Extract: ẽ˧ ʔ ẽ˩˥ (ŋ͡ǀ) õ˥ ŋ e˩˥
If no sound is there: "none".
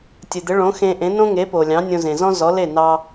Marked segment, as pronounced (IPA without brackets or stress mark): n